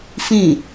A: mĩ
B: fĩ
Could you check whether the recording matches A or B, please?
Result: B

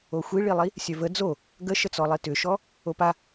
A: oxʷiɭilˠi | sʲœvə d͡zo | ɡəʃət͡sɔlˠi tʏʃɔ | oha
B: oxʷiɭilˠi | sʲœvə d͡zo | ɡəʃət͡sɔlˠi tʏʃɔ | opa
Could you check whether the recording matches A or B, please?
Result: B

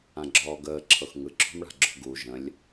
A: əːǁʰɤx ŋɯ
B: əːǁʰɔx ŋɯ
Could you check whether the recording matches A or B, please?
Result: A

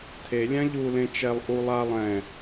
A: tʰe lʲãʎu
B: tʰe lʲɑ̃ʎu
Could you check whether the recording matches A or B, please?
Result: A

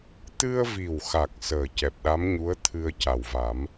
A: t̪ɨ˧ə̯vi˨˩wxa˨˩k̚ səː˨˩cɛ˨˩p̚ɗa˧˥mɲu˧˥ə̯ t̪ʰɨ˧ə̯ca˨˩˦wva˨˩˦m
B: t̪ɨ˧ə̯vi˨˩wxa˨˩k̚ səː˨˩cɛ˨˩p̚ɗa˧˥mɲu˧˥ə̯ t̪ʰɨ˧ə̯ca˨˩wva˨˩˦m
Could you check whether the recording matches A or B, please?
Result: B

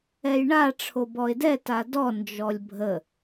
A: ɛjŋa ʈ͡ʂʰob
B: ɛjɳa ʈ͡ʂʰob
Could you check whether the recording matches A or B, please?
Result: B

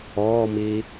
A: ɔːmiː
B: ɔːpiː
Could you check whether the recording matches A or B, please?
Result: A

